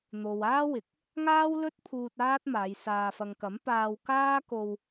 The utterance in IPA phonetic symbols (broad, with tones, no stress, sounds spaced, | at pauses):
n̪ o˨ w aː˥ w ɪ˨˥ k̚ | ŋ aː˥ w l ɵ˥ t̚ pʰ uː˧ t̚ aː˥ t̚ m aː˨˧ j s aː˨ f ɐ˨ ŋ k ɐ˨˥ m p aː˧ w k aː˥ k o˧ w